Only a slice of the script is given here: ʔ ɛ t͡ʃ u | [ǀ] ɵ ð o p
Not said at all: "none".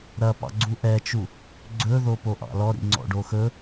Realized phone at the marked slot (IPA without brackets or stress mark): ɡ͡ǀ